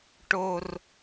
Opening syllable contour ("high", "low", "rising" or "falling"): high